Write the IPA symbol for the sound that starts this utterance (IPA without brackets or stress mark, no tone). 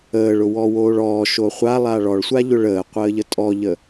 əː